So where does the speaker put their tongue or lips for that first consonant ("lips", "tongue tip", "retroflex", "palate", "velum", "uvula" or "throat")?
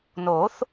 tongue tip